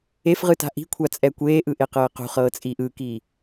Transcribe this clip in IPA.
efʁɯta̤ ʔi̤kʷʰat͡sʼɛ kʷeːʔɯʔeqɤː qṳχɤːt͡sʼiːʔ ɯkiː

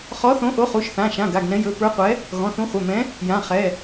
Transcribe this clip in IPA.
χɔ˨˥θõ˨˥ʔo˨˥ χu˩˧˩ʃθã˩˧˩ʃã˩˧˩ ɡa˩˧˩ɡnɛ̃˨˥jɵ˩˧˩ pə˞˨˥qʷɛ˨˥ | ɣɔ̃˩˧˩θũ˨˥ χʷɛ˩˧˩ mɛ̃˨˥ | jã˩˧˩ χɛ˩˧˩

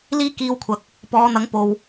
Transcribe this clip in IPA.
liː˥kiː˧wkʷʰɐ˨k̚ | pɔː˨˧n̪ɐ˨˥ŋpo˨w

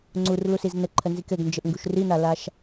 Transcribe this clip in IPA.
ŋ͡ǀurlusiz nɘǃʰənzik ɘɡnd͡ʒɘʔŋɡuʃ rinalaʃ

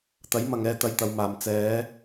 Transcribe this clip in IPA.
t̪ɐ˨˥jmɐ˨ŋɛː˧ t̪ɐ˧jt̪ɐ˨˧wmaː˨m t͡sɛː˨˧

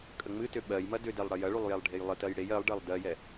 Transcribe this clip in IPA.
kʼəŋ͡mɨtʏ ɓɜjmɐ dʏdɛlˠ ɽɐjɐɭulˠ jɛlˠɖʱejlˠətɜj ɽej ɜlˠɖɜlˠ dɜjɛ

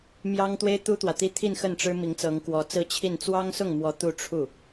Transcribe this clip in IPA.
mjɑ˥ŋt̪we˥ɪ̯ t̪u˥t̪wä˨t̪i˥ t̪ʰi˥˧nxə˥˩nʈ͡ʂɻ̩˥ mi˧˥ŋt͡sɤ˧˥ŋkwɔ˧˥ t͡sɹ̩˥˧t͡ɕʰi˥˩n t͡swɑ˥ŋsʊ˥˩ŋmwɔ˧˥ t̪u˥˧ ʈ͡ʂʰu˥˩

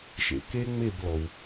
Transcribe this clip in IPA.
ʃḛ˩ ke˦ ŋ͡me˥˨blɔ˩w

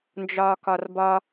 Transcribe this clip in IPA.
nd͡ʒɒːkɒrbɒ

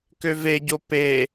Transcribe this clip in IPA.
køveɟo pe

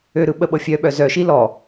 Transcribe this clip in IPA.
øɾɯ ɓəɓɤfʲœɓœ zœʃi lɔ

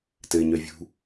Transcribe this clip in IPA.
tɘɲœvʲṳ

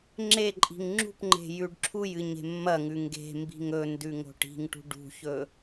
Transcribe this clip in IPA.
ŋ͡ǁeǃʼi̤ŋ ŋ͡ǁṳpŋ͡ǃe̤ jʉɖǁʰujɨ ɲe̤mːɐŋʉ ŋɡe̤ mbi̤ŋɵndʉ ŋo̤ʈi̤ŋʈṳ ɖṳçɵ

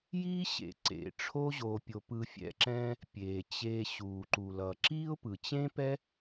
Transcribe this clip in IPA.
ji˦ ɕḛ˩ ǀḛ˩ ʈ͡ʂʰo˦ʑo˨pʲo˨ pɯ˨fʲɛ̰˨ǁɛ̃˦ | pʲe˩t͡ɕe˨ɕu˩ ǃu˩lʌ˩ǁi˥ʊ̯pɯ˩ t͡ɕẽ˥pɛ˥

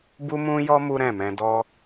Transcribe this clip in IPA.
bu˦mũ˦jɔ˦ mu˦ɾɛ̃˦˨ mɛ̃˧dɔ˦

